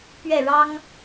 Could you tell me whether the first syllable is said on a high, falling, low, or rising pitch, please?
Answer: falling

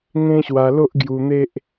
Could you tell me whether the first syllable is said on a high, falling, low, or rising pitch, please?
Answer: high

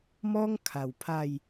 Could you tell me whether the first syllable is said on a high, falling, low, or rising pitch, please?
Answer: high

